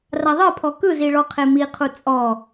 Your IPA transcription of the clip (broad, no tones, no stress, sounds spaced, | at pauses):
r a ðˤ ɤ pʰ ɔ k ɯ z i ɭ ɔ qʰ e m i qʰ u t͡sʼ ɔ